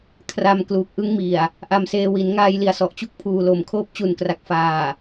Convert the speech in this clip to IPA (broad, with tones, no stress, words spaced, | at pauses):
kʰra˧mkluː˨˩k̚ʔɯ˦˥ŋ mi˨˩a̯ | ʔa˧mseː˧ wi˩˦nŋaː˧jli˨˩a̯ sɔ˨˩ʔt͡ɕu˦˥k̚pʰuː˨˩lo˨˩m kʰoː˦˥p̚t͡ɕu˨˩nkra˨˩k̚ faː˨˩